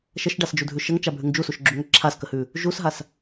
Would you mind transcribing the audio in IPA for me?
ʃəʃɖasd͡ʒudʱʉ ʃəŋt͡ʃabʱʉŋ d͡ʒusuʃɡ͡ǁuŋə ǁʰaskəhʉ | ʒusɦas

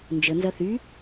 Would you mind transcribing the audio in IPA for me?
nd͡ʒənzɐ θy

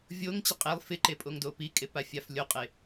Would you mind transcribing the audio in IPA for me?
vʲoŋt͡ɕɪ qʼelˠ fɪǃepʼoŋdo pikʼepafʲaf lʲoqʼe

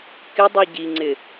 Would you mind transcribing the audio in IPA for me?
kɪdˤi ɟiŋ͡ǀɪ

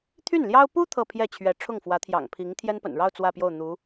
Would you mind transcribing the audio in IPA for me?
t̪ʰy˥˩nljɑ˥ʊ̯ pu˥ t̪ʰɤ˥˧pʰjɛ˥˩t͡ɕʰɥɛ˧˥ ʈ͡ʂʰʊ˥˩ŋfwä˧˥t̪ʰjɑ̰˨˩ŋ pʰi˧˥ŋ t̪ʰjɛ˥npə̰˨˩nɻɑ˥˧ʊ̯ t͡swä˥˧pjo˥˩ʊ̯ n̪u˧˥

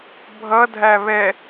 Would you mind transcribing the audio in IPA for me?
bʱʌdʱæ βɛ

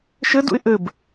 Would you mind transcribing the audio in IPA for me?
ʃɘ dṵɪ̯ʔɘb

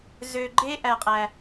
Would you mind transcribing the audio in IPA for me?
zø˧ɡ͡ǃe˦ʔæ˧qʼæ˧

